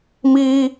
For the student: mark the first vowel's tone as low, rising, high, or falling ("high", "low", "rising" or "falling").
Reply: high